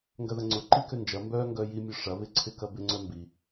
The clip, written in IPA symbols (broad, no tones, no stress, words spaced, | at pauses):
ŋɡɐðɐŋ͡ǀʊ ǃikønd͡ʒɐ mbœ ŋɡœjimʲʊʂɐ βɪǀʰɪkɐbɪ ŋ͡ǀœmbi